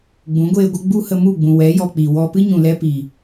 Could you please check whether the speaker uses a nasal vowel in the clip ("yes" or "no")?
yes